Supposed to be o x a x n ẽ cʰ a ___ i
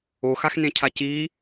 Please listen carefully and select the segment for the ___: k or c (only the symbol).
c